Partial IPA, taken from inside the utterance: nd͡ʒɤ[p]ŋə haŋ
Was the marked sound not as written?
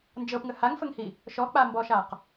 no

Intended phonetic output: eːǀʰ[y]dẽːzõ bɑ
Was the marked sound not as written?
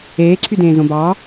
no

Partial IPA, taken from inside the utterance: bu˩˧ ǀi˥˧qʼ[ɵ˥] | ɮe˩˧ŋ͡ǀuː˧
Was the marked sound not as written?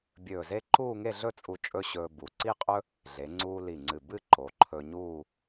no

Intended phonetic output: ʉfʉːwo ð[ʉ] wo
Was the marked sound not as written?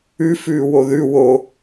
no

